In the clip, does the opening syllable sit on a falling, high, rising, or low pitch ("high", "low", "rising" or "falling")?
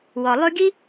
low